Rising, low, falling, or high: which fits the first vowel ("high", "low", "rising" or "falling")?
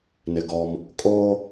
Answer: low